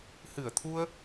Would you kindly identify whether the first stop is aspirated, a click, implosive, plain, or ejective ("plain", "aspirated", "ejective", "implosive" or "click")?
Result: aspirated